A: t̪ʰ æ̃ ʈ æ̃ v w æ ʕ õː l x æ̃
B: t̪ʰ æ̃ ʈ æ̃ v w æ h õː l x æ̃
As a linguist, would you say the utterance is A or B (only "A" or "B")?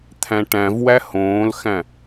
B